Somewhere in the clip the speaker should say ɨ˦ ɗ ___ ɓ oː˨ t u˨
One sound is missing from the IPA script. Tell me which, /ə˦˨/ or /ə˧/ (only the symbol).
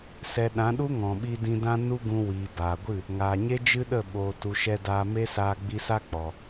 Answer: ə˦˨